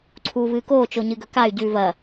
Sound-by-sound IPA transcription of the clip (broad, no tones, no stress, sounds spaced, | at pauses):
ǀʰ uː v ɨː k oː t͡ʃ o ɲ ɨ ɡ ɵ k a y̯ ɟ ʉː v ɐ